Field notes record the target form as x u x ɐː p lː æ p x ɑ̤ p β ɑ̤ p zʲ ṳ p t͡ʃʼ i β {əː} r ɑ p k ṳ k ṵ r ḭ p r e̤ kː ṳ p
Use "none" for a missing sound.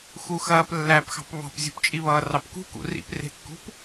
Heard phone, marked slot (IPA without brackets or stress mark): ʌː